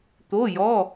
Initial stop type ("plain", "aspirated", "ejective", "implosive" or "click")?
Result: plain